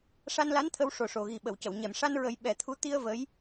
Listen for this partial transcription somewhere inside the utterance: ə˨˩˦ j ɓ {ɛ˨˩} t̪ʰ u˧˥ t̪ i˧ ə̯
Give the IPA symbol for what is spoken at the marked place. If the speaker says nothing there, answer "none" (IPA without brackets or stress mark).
ɛ˨˩˦